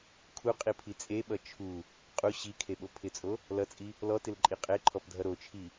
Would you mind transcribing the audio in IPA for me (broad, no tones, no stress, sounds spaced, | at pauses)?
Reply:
kʰ u qʼ i pʰ i t͡sʼ e ɓ ʌ t͡ʃʰ u | qʼ u ɕ i kʰ e ɓ o pʰ ɪ t͡sʼ o | l ʌ t͡sʼ i | l ɔ t ɪ l ǃʼ i qʼ e ǃʰ ɔ p dʱ ʌ ɾ o t͡ʃʰ i